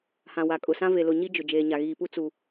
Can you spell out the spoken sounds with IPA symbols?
h ã˨ w a˨ kʼ ʊ˨ s ã˦ v e˨ l ʊ˨ ɲ i˦ d͡ʒ ʊ˨ d͡ʒ eː˨ ɲ a˨ ɣ iː˨ p u˦ t͡s u˨

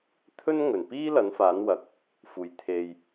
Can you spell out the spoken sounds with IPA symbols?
t̪ʰ ɵ˥ n ŋ ɵ˨˩ n p iː˥ l ɐ˨˥ n f aː˨˥ n w ɐ˨ k̚ | f uː˨ j t̪ʰ e˧ j

